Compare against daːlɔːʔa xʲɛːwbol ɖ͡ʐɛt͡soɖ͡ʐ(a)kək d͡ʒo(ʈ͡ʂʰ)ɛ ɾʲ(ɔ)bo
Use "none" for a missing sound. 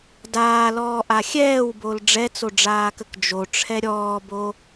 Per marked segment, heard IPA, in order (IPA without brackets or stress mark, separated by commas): aː, ʈ͡ʂʰ, ɔː